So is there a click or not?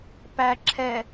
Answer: yes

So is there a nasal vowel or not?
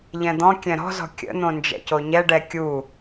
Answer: yes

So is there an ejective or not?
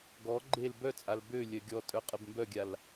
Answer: yes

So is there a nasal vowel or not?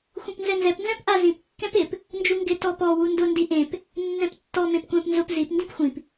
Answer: yes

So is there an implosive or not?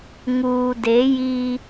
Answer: no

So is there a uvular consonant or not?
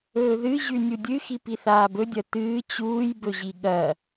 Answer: no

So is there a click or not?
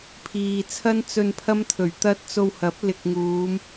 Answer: no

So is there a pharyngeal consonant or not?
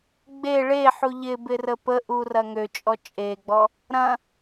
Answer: yes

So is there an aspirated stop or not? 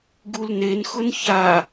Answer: no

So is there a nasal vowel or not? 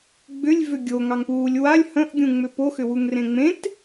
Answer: yes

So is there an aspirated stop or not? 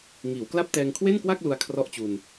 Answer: yes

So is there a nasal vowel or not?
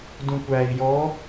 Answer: yes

